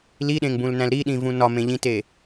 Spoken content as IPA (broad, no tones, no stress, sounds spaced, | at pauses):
l i ɗ ẽ ŋ b ũ l n æ̃ l ɾ i ɗ ĩ v ũ n ɒ m ẽ ʎ ĩ t e